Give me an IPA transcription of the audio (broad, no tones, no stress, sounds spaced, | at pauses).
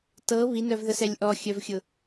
t ɤ β i n œ v ð ə s ɛ lʲ ʔ ɔ xʲ œ v xʲ ʊ